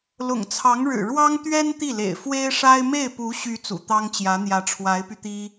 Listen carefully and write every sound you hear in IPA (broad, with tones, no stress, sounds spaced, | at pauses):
l ʊ̰˨˩ ŋ t͡sʰ ɑ˧˥ ŋ ɻ ɻ̩˨˩ ɻ w ɑ˥ ŋ t̪ ɥ ɛ˥ n t̪ i˥˩ l ḛ˨˩ ɪ̯ f w e˥ ɪ̯ ʂ a˥ ɪ̯ m e˥˩ ɪ̯ p u˧˥ ɕ y˧˥ t͡s ṵ˨˩ t̪ ɑ˥ ŋ t͡ɕ j ä˧˥ n̪ j ä˧˥ ʈ͡ʂʰ w a˧˥ ɪ̯ p y˧ t̪ i˥